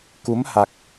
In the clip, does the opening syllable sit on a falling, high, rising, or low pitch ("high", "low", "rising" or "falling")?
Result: rising